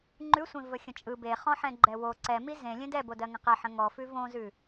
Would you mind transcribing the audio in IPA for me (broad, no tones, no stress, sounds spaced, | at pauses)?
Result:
ŋ͡ǃ ʉ sʷ ẽ v ə xʲ ə̃ t͡ʃʼ ɯ b e χ ɔ̃ ħ ɛ̃ ɡ͡ǃ ɛ w o ǀ ɛ m i z ẽ lʲ ẽ d ɛ b o d ɜ ŋ ə̃ q ɛ ħ ə̃ ŋ ɔ f ʉ v õ z ʉ